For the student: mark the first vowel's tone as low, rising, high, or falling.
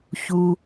low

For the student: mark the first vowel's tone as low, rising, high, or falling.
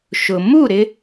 low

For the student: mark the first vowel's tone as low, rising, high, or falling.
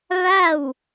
falling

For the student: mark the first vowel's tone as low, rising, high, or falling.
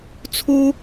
high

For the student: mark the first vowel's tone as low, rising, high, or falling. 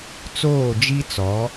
falling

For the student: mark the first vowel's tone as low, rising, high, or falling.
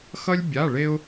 high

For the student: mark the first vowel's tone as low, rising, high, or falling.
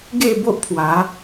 falling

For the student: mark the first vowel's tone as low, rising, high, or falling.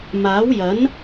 rising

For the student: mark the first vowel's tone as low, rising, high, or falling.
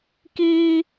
high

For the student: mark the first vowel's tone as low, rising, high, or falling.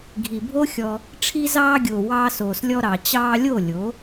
low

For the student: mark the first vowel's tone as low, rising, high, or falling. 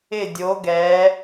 falling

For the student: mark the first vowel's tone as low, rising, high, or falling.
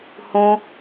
high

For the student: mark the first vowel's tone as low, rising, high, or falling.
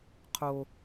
high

